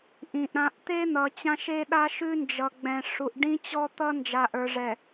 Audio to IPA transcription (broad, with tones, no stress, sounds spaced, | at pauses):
ʔ ĩ˨ ʔ ɾ ã˨ ʔ t̪ e˦ n̪ ʌ˨ t͡ɕ ã˦ ʃ e˦ ɗ a˦ ʃ ʉ˦ n d͡ʒ ʌ˨ ɡ͡b ɛ̃˨ ʂ u˨ ʔ ɖ ĩ˦ t͡ɕ ɔ˦ t̪ ʌ˦ n d͡ʒ a˨ ʔ ə˞˨ ʐ ɛ˨